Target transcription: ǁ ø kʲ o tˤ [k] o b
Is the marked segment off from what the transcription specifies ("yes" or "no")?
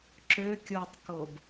no